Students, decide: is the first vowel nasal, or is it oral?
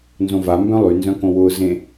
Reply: nasal